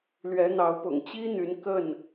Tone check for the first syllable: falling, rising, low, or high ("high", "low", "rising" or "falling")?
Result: rising